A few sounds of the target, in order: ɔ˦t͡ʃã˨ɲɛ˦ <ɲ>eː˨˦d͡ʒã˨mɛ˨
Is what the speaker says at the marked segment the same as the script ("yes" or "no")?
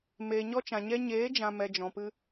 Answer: yes